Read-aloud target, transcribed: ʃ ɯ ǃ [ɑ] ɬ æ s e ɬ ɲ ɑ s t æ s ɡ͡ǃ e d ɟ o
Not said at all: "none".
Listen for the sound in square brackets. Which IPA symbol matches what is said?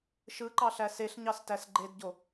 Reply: ɑ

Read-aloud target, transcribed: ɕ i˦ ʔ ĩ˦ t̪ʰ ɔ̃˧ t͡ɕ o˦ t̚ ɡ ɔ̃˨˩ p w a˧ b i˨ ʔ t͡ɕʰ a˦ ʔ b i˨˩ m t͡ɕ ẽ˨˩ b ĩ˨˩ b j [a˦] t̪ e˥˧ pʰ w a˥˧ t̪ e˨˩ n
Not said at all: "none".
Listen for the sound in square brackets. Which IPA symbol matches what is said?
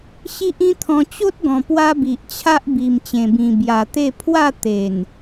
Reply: a˨˩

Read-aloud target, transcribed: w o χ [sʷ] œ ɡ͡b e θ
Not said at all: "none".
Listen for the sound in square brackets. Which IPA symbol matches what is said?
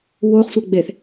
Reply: sʷ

